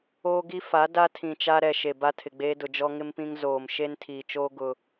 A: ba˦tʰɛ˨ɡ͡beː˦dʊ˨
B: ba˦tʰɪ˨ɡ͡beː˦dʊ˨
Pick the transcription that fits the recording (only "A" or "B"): B